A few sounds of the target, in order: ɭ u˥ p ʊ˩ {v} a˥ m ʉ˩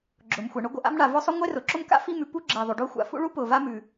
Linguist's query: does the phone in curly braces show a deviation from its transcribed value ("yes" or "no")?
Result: no